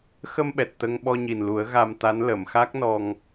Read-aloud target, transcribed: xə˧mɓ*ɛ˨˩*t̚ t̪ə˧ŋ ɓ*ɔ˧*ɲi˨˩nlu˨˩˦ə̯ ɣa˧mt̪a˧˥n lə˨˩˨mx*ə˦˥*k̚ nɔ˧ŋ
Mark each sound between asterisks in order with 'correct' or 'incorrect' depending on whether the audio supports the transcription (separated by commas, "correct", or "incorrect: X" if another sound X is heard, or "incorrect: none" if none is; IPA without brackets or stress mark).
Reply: correct, correct, incorrect: a˦˥